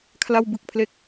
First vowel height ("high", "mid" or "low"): low